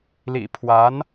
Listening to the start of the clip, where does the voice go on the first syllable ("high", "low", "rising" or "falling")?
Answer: low